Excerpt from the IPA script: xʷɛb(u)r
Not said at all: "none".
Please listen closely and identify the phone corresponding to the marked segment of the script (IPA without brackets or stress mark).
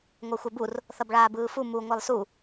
u